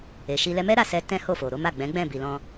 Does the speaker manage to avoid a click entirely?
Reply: yes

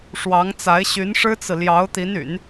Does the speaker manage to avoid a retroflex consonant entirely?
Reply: no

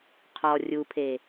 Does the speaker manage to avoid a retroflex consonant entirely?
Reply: yes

